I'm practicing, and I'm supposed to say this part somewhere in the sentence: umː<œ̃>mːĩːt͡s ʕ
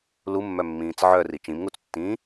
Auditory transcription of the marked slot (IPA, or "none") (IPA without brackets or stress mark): œ